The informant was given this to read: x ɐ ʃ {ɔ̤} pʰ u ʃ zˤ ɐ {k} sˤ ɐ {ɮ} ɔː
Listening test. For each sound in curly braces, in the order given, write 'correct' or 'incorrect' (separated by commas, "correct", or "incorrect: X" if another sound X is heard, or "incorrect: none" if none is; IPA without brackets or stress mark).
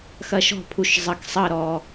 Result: correct, correct, incorrect: ɾ